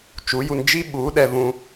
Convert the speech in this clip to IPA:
t͡ʃ u˨˦ j u˧ n d͡ʒ i˦ ɓ u˨˦ ɗ ɛ˧ v ũ˦

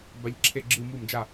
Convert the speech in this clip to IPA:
b a˨˦ ʎ ǁʰ e˧˩˧ ɡ͡ǁ ɯ˧˩˧ m u˧˩˧ m d͡ʒ a˧˩˧

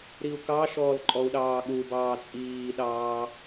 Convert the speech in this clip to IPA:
ɾ i u̯ k ɑ ʃ ɔː l ǃʼ ɔ u̯ ɗ ɑː ɠ u b ɑː t͡sʼ iː ɗ ɑː

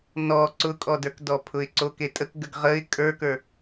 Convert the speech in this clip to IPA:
n ɔ ǀ ʊ kʼ ɔ d ə˞ k d ɔ pʰ ʊ ɪ̯ ǀ o k e tʼ ə k ɡ ə ɡ ʁ ə ɪ̯ kʼ ə˞ k ə˞

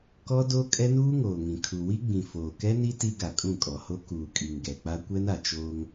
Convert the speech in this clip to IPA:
k ɔ˦ d o˦ kʼ ɛ˦ n uː˦ ŋ oː˨ ŋ ĩ˨ kʰ u˨ w i˦ ɡ͡b ĩ˨ f oː˨ k ɛ˦ n i˦ t i˦ ɡ a˨ kʼ ũ˦˨ kʼ ɔ˨ h o˦ k uː˨ kʼ i˨ ŋ ɡ ɛ˨ k͡p a˦ kʷ ɛ˦ n a˨ t͡ʃ oː˦ ŋ

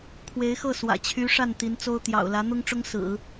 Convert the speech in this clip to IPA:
kʰ w e˧˥ ɪ̯ x ɤ˥˩ s w ä̰˨˩ t͡ɕʰ y˧˥ ʂ a˥˩ n t̪ i˧˥ n t͡s o˥ ʊ̯ t̪ j ɑ̰˨˩ ʊ̯ l ä˧˥ n̪ ʊ˥ ŋ ʈ͡ʂ ʊ˥ ŋ s ɹ̩˨˩˦

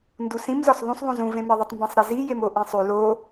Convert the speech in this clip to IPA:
n d u s ĩ m z ɒ s ðˤ ũ s ðˤ ũ z ũ v ẽ m e ðˤ u tˤ m b ĩ sˤ ɾ e z i j e m o ʔ ĩ sˤ ʉ l o

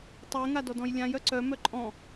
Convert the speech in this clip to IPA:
tˤ ɛ ŋ a d ɔ d ɔ̃ j lʲ ã j œ ǀ œ m œ ǃʼ ɔ̃

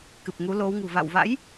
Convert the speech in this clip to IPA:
k ɨ˨˩ p̚ ŋ u˨˦ l o˨˦ w ŋ ṳ˨˩ v a̰˧˨ w v a̰˧˥ j

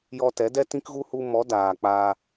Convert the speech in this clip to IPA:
j ɔ˧ t ɛ˨˦ d ɛ˦ t ĩ˦ k ɣ u˦ h u˧ m ɔ˨˦ d aː˨ k͡p aː˧

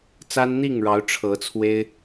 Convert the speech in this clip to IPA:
t͡s a˦ n n̪ i˥˨ ŋ ɻ ɑ˨˦ ʊ̯ ʈ͡ʂʰ ɤ˨˦ t͡sʰ w e˦ ɪ̯

